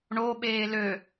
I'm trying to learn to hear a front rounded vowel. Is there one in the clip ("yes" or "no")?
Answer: yes